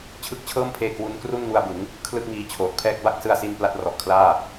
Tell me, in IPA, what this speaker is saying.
t͡ɕʰ ɯ˥˩ k̚ t͡ɕʰ ɤː˥˩ m pʰ eː˧ k w u˦˥ n k r u˥˩ n ŋ u˧ a̯ b ɯ˩˦ ŋ | kʰ l ɯ˥˩ k̚ ŋ iː˦˥ t͡ɕʰ oː˨˩ t̚ pʰ ɛː˥˩ k̚ b a˥˩ k̚ s ɯ˧ a̯ s i˧ n p l a˦˥ t̚ r ɔ˨˩ ʔ kʰ l aː˥˩

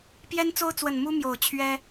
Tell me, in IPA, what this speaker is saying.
p j ɛ˦ n t͡s o˦ ʊ̯ t͡s w ə˨˩ n m u˦ m j o˨˩ ʊ̯ t͡ɕʰ ɥ ɛ˦

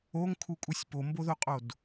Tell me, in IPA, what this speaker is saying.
o ŋ kʰ u kʼ u sʲ p o m b o ð o qʼ o d

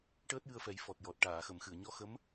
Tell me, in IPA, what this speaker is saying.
ʈ əː˦˥ t̚ j ɨ˧ ə̯ f ɛ˨˩˦ j f ɔ˨˩ t̚ j ɔ˨˩ t̚ ʈ aː˨˩˨ x ə˨˩˨ m x ɨ˨˩˨ ə̯ ɲ ɔ˧˥ x ə˧˥ m

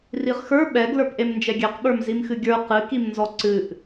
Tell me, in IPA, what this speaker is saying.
r i ʁ x ə˞ ɓ ɛ ɡ l ə˞ p ʔ e m n d͡ʒ ɛ ɡʲ ɛ q ɓ ə˞ m z i m x ɨ ɡʲ ə˞ q ɨ k i m n z ɔ ǀ ɨ ʔ

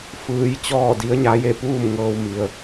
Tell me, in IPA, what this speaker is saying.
f ɯː˧ j t͡ɕ ɔː˥˨ d i˧˥ ə̯ ɲ a˧˥ j e˥˨ p uː˥˨ m ŋ ɤː˧ w m i˩ ə̯

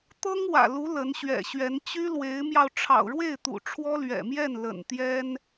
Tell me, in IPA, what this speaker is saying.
t̪ ɤ˥ ŋ w ä̰˨˩ l u˧˥ l ə˧˥ n ɕ ɥ ɛ̰˨˩ ɕ ɥ ɛ˧˥ n t͡ɕ y˥ l w e˧˥ ɪ̯ m j ɑ˧ ʊ̯ ʈ͡ʂʰ ɑ̰˨˩ ʊ̯ ɻ w e˥˩ ɪ̯ t̪ ṵ˨˩ ʈ͡ʂʰ w ɔ˥ l ɥ ɛ̰˨˩ m j ɛ˥˩ n l ə̰˨˩ n t̪ j ɛ˥ n

